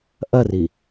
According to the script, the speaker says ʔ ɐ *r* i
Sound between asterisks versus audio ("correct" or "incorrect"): correct